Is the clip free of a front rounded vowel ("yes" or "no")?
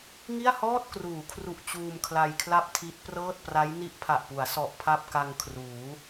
yes